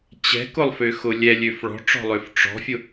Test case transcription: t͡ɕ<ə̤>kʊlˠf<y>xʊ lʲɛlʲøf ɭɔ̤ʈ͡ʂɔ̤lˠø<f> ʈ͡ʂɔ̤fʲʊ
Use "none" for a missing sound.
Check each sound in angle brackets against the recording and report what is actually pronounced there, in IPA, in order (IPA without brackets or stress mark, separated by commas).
ɛ̤, ʏ, f